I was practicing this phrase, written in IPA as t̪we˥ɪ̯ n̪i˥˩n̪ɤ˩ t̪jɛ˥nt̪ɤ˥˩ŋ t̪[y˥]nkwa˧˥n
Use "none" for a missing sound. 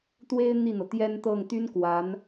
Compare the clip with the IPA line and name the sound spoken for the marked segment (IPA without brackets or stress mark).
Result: y˥